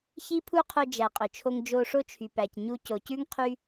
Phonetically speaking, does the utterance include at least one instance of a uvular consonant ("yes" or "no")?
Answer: yes